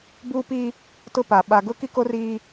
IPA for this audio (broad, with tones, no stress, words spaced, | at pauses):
buː˦pi˦ | tʊ˦pa˨ ɓa˨ɡʊ˦ki˦ko˦r iː˦